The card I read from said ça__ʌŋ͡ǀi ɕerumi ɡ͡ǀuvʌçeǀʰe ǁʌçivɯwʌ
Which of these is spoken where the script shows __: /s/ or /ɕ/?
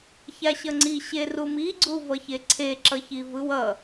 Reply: ɕ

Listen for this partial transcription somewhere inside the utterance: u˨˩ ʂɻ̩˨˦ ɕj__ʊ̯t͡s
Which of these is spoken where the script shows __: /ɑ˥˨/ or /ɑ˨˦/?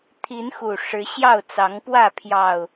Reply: ɑ˥˨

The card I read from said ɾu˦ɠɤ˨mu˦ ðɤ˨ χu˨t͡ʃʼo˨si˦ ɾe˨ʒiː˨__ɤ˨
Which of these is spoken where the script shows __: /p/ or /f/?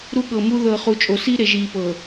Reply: p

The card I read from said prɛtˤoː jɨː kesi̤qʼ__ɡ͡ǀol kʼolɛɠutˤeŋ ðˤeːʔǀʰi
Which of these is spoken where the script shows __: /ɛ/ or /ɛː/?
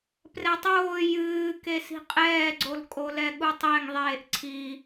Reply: ɛː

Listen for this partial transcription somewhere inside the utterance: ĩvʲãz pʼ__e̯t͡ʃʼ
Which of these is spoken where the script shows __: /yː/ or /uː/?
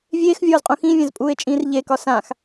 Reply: uː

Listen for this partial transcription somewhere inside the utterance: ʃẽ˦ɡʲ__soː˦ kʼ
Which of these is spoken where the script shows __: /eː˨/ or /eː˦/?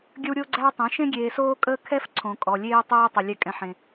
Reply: eː˨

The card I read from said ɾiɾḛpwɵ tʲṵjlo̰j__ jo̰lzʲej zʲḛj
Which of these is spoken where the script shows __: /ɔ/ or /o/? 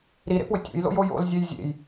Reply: o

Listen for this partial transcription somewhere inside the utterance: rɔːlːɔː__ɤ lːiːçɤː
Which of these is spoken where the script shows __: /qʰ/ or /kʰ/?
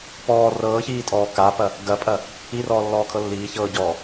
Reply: kʰ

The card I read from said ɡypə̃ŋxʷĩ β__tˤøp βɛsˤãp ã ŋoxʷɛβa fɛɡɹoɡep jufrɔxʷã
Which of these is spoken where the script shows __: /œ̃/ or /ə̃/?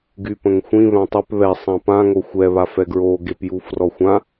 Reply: œ̃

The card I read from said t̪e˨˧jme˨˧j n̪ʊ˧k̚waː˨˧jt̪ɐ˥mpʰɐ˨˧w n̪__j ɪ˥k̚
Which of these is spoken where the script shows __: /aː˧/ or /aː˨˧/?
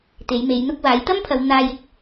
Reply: aː˧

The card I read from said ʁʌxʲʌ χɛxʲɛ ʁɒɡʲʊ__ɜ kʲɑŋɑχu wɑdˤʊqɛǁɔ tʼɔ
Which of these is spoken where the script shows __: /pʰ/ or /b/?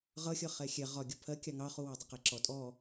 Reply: pʰ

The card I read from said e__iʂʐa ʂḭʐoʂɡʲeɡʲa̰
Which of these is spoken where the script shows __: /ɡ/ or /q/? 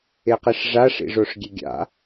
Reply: q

